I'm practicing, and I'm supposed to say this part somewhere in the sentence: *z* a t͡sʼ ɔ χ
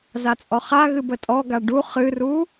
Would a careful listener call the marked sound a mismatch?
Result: no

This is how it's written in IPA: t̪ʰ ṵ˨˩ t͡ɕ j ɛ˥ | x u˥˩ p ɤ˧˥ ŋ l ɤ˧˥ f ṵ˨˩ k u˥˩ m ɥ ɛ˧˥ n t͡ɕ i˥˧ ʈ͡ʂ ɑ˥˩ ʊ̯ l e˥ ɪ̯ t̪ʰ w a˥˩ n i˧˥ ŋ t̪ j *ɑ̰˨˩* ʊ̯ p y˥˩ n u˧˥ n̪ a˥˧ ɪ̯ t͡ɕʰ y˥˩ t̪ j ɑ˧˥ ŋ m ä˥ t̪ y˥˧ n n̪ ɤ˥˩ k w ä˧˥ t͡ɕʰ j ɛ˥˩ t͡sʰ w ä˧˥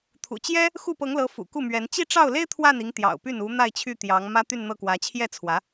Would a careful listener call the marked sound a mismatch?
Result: no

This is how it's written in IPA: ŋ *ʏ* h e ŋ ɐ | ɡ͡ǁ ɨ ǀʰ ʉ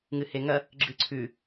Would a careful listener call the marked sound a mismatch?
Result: yes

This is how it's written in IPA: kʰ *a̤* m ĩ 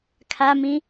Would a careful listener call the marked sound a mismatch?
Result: yes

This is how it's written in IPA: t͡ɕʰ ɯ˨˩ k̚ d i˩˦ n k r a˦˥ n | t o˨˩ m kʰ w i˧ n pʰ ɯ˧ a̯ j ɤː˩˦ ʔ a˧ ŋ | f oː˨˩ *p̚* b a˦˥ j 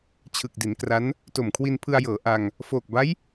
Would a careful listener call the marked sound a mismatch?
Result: yes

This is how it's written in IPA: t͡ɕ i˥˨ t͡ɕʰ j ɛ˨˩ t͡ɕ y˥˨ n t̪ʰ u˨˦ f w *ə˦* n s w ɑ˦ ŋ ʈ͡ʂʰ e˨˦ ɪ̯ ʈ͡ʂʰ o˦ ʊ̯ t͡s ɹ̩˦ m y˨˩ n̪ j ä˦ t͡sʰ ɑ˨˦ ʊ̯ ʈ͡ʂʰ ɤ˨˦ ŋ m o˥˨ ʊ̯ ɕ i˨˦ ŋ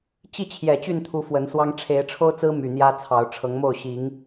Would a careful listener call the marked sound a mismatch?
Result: yes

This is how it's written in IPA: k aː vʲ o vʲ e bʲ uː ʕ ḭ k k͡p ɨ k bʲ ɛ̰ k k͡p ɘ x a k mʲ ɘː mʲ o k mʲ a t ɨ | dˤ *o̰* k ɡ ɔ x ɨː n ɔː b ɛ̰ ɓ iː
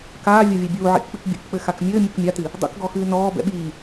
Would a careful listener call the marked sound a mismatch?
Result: no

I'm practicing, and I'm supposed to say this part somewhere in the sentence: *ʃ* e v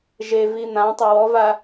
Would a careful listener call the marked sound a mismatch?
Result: yes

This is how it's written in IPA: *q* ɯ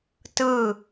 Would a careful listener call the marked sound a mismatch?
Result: yes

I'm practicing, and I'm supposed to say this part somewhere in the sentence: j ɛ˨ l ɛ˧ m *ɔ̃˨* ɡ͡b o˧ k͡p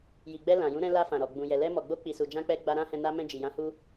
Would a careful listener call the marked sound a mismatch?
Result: yes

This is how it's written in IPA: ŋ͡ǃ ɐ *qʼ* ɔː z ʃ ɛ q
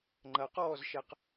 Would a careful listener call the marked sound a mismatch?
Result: yes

